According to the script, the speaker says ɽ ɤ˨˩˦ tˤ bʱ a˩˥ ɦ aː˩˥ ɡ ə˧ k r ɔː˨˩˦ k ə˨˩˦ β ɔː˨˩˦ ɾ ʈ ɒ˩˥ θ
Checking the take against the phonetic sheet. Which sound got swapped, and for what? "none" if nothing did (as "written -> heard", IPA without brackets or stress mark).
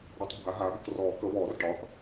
ɾ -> r